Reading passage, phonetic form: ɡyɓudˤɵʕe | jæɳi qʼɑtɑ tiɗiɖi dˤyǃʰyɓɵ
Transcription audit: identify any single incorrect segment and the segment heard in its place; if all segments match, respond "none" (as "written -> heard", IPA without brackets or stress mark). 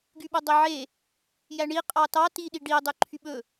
none